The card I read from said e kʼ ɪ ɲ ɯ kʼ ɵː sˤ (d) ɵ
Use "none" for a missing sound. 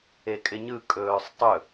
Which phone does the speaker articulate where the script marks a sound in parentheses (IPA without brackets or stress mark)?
tˤ